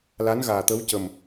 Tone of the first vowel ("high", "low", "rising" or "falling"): rising